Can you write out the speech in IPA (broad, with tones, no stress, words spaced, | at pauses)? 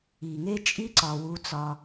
i˨ŋe˦ t͡ʃʼi˦ǀɒ˨ wu˦t͡sɒ˦